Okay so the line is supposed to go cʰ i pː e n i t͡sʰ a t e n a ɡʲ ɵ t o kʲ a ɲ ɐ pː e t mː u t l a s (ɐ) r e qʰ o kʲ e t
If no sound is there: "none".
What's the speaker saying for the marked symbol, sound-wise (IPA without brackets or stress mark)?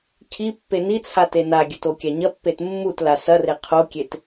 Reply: ɐ